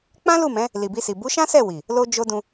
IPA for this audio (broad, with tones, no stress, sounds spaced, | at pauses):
k͡p ã˦ l u˦˨ m ɛ̃˨˦ | l i˨ b i˧ s i˨ b u˨˦ ʃ ã˦ s ɛ˦˨ w i˨ | l o˦ d͡ʒ o˦ d ũ˧